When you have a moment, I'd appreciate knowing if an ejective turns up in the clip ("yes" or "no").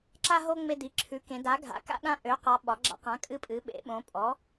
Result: yes